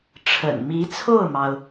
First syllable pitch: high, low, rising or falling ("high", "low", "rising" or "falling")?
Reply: low